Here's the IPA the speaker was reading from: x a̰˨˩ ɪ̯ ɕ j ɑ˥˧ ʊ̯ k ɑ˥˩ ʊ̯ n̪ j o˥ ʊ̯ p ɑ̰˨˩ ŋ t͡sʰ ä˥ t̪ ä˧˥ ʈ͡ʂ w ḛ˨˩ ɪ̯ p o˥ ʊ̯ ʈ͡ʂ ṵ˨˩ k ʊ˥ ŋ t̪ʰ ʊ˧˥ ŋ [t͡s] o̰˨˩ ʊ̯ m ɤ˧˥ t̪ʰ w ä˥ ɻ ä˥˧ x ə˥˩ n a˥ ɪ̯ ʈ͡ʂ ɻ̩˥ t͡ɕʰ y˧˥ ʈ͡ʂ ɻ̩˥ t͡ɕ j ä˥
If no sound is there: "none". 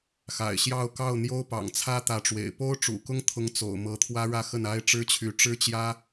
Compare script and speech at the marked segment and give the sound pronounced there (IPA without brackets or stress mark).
t͡s